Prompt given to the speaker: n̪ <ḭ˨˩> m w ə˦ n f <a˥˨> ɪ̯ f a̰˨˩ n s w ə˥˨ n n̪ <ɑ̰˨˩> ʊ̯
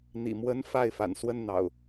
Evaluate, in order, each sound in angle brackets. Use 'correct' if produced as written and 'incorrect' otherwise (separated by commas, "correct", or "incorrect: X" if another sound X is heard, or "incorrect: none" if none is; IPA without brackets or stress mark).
correct, correct, correct